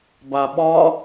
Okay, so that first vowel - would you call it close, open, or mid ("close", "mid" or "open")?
open